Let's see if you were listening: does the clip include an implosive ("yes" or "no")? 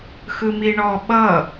yes